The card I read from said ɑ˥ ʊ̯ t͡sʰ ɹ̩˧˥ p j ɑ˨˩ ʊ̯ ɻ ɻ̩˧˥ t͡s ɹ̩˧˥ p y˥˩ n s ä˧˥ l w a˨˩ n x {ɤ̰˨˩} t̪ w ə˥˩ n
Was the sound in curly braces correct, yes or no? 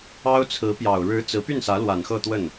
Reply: no